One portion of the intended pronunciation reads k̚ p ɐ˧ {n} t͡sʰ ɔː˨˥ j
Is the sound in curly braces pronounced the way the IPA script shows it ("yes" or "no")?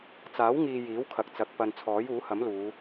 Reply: yes